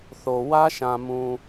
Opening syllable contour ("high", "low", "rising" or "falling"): low